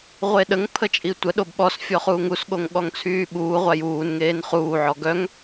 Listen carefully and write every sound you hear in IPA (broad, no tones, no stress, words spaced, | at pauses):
ʁʷeɗəŋ pʰət͡ʃʼitʷə ɗobɓɔsfʲɔχuːŋ usɠoŋ ɠɔŋt͡sʰyːɓuːʁʷaj uːnŋeːn χuːʕɔ ɡœŋ